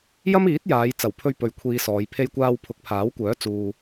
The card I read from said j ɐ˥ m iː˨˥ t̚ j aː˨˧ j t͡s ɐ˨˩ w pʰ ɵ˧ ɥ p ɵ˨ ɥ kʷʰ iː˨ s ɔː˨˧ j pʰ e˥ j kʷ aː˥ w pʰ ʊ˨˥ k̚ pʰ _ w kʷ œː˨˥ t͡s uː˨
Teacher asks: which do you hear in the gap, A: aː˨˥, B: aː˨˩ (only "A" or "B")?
A